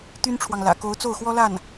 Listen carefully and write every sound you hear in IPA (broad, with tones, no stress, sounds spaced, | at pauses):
t̪ y˥ n ʈ͡ʂʰ w ɑ˨ ŋ l ä̰˨˩ k o˧˥ ʊ̯ t͡s o˥˩ ʊ̯ x w ɔ˥ l a˥˩ n